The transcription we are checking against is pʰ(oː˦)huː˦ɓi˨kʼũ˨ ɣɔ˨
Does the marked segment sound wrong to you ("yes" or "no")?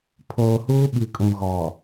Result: yes